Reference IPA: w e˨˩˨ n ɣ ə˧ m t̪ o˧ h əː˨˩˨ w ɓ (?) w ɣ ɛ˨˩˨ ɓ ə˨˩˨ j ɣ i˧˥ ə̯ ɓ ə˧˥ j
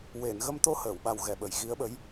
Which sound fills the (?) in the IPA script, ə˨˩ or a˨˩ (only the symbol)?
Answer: a˨˩